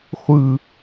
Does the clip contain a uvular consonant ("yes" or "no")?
yes